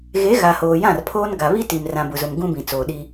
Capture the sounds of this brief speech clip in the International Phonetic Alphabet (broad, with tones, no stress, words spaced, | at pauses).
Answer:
ɣe˨˦ ɣa˨hoː˨jã˦˨rpʰoː˦n ɡa˨βi˦ti˨m rã˨bʊ˨zʊ˨m ɡũ˦bĩ˨ t͡soː˨ɗi˦